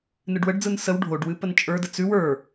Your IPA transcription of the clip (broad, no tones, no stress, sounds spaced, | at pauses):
n ɨ ɖ w ə ɖ d͡z ɯ n s ə w ɖʱ o ɖ w ɨ p ə n t͡ʃʼ ə˞ d ə t͡s ʉ w ə˞